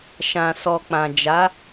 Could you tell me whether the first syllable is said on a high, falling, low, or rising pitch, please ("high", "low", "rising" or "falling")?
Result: low